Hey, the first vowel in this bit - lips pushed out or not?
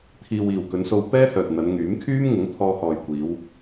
no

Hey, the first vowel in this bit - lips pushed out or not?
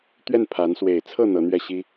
no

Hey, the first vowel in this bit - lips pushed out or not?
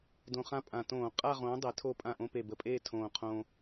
yes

